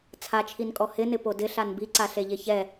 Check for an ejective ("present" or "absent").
present